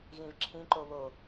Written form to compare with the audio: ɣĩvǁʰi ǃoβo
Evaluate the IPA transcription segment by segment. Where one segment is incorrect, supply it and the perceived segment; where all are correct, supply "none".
i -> ĩ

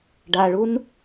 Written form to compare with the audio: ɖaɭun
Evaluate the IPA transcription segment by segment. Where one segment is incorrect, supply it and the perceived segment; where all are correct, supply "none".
none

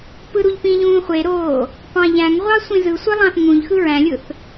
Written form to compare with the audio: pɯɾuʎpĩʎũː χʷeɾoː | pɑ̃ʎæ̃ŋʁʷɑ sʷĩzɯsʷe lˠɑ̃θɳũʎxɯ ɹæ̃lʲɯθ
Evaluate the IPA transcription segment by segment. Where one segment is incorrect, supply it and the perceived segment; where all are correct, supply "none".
ɳ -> ŋ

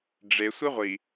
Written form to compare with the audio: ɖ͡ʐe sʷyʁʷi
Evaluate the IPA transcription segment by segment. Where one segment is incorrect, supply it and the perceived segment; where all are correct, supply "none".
y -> i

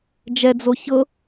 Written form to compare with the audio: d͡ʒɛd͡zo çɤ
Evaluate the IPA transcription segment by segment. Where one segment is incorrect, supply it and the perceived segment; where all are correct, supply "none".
none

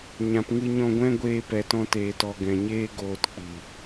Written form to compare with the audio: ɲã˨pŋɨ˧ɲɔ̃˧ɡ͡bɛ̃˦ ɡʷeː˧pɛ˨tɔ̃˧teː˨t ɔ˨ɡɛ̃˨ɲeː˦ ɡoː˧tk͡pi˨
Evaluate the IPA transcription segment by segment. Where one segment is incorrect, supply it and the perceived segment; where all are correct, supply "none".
ɡ͡b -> ɡʷ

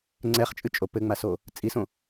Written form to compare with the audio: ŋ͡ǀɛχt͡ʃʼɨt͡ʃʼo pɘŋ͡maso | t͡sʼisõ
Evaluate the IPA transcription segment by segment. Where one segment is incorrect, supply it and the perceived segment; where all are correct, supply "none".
none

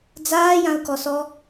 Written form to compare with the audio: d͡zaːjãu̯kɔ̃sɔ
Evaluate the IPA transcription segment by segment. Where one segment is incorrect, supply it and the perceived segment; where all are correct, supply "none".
ɔ̃ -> ɔ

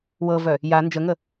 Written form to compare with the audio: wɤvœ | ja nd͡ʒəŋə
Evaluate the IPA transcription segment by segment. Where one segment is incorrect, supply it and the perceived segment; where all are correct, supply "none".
none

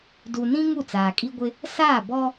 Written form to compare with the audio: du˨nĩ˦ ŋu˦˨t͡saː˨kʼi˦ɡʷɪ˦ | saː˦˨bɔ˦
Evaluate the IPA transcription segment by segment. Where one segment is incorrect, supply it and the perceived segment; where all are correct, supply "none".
none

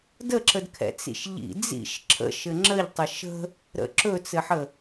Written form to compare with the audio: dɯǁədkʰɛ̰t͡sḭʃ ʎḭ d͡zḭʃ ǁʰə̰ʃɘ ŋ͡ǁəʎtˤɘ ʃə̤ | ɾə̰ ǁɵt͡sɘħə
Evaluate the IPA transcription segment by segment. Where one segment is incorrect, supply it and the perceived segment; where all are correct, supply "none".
ɯ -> ə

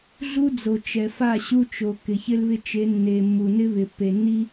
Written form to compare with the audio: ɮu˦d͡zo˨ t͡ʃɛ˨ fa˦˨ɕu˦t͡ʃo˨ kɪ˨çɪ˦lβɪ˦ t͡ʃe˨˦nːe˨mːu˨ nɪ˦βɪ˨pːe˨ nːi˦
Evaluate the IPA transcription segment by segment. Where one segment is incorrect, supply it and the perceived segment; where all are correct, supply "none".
none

